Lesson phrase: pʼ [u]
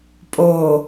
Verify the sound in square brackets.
incorrect: o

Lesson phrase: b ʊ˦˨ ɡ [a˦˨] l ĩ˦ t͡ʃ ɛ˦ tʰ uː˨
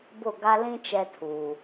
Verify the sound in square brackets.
incorrect: a˦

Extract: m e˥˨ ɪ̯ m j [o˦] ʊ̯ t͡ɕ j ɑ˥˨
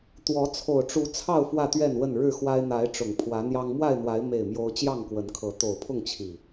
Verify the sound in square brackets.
correct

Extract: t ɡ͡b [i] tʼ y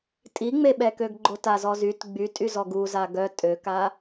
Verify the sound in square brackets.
incorrect: y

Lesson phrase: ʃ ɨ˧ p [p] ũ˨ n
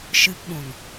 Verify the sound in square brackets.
incorrect: ɓ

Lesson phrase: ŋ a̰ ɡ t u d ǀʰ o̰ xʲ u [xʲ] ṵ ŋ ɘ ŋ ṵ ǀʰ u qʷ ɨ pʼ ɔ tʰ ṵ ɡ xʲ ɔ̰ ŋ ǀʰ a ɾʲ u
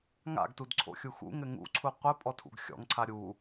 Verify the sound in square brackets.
incorrect: x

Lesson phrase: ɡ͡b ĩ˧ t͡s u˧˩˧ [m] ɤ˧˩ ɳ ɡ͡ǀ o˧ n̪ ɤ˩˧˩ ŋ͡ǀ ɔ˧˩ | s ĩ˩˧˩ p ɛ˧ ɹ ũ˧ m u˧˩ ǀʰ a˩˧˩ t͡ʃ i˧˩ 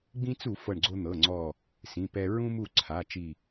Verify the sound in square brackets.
incorrect: f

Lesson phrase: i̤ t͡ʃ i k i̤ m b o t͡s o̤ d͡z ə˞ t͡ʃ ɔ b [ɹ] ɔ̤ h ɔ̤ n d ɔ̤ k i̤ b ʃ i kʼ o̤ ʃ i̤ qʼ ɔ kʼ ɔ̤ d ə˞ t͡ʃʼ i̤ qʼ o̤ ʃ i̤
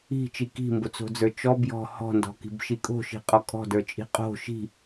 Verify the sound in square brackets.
incorrect: j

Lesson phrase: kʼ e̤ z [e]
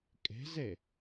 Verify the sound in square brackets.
correct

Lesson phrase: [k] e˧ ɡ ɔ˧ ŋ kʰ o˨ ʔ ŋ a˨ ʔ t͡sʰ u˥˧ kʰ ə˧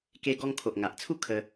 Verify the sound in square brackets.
correct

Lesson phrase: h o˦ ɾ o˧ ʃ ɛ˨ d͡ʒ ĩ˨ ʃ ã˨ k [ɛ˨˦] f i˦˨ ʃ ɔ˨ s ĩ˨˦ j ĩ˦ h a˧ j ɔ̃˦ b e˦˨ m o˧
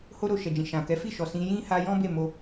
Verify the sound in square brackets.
correct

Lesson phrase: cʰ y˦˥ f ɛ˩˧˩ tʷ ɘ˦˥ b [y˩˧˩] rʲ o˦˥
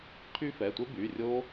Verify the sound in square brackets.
correct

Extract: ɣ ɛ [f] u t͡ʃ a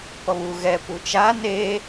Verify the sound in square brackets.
incorrect: p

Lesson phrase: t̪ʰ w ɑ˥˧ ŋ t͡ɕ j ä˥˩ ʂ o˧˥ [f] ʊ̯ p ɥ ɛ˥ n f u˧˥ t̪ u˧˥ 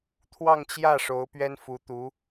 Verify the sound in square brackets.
incorrect: none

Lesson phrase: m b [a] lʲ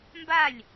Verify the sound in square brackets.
correct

